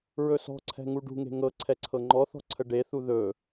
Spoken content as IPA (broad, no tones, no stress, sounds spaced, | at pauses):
ɹ ɵ s ɔ̤ ǀʰ ɛ̤ ŋ u ɖ ṳ ŋ e̤ ŋ ɤ ǀʰ ɛ ǀʰ ɤ ŋ͡ǃ ɔ θ ɔ̤ ǀʰ ə ɖ e θ u ð ɵ